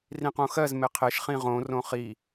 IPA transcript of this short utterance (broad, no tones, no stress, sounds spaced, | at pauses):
r ĩ q õ x ɜ z m e qʰ e ʃ χ ĩ ʁ õ r õ χ i